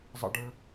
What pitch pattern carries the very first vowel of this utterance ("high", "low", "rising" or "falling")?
high